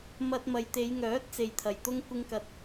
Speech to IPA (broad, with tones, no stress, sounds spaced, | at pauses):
m ɐ˧ t̚ m ɐ˨ j t̪ e˨˧ j ŋ œː˨˥ t̚ t͡s e˨ j t̪ʰ ɐ˨˩ j t̪ ʊ˥ ŋ kʷ ɪ˥ ŋ k ɐ˧ t̚